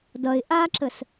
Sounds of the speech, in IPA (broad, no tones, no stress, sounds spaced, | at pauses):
d ʌ ɪ̯ ʔ a ǁ ə s